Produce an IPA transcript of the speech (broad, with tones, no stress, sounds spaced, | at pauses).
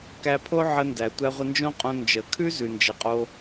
k æ˧ pʰ o˥ ʕ ə˧ n d æ˩ tʷ æ˧ ʁʷ ɪ˧ n d͡ʒ õ˥ qʼ õ˧ n d͡ʒ ə˩ kʰ ʉ˥ z ʉ˩ n d͡ʒ ə˩ qʼ o˧